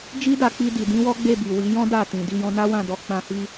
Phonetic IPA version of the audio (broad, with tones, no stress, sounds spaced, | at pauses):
d͡ʒ i˦ d a˧ k͡p i˧ d i˨ d ĩ˨˦ w ɔ˦ ɡ͡b e˦˨ b i˨ w i˨˦ j ɔ̃˦ d a˦˨ t ĩ˨ d i˧ j ɔ̃˧ n a˦ w ã˦˨ d ɔ˧ k͡p ã˧ h i˦